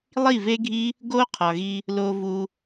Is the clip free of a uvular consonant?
no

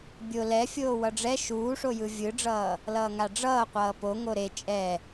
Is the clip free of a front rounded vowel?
yes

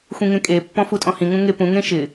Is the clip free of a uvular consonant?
yes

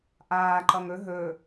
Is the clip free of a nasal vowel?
yes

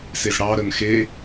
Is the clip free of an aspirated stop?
yes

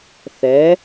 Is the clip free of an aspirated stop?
yes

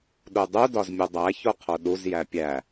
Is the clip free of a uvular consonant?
no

